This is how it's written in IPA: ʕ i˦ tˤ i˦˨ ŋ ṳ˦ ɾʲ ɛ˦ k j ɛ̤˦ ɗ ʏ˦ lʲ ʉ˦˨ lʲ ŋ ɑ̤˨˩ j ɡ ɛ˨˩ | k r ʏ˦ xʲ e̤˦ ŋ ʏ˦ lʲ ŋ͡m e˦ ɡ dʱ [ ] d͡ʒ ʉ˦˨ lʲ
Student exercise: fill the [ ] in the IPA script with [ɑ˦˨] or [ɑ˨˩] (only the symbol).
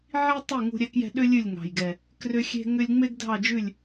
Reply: ɑ˦˨